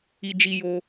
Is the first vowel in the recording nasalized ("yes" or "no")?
no